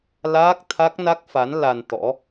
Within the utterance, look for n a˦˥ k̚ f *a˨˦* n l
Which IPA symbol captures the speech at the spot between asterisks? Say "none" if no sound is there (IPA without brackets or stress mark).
a˨˦